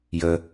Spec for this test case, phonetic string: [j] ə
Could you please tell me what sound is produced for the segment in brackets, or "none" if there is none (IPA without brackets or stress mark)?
j